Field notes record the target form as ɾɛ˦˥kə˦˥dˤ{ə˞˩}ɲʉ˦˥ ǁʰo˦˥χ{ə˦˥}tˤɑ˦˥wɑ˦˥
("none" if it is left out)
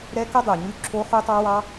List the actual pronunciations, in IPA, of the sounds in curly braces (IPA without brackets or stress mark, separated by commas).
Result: ə˞˩, ʉ˦˥